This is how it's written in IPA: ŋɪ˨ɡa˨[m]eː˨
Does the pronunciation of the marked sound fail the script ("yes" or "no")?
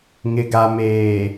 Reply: no